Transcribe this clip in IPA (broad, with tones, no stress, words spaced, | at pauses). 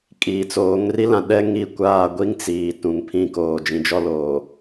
kʼiː˨t͡soː˨˦ŋ ri˦lã˨ ɗɛ˦ŋi˦˨kʷaː˦˨ ɡʷi˦ŋ t͡siː˨ tũ˨ŋ pʰĩ˨ koː˨d͡ʒĩ˨ d͡ʒɔ˦loː˨